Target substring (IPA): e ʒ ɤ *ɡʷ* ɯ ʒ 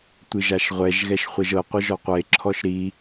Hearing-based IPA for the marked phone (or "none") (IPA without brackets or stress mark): qʷ